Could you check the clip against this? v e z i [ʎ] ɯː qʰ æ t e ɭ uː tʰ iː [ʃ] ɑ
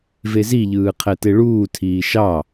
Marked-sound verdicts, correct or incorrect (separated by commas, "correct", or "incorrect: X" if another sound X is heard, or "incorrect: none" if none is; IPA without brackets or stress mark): correct, correct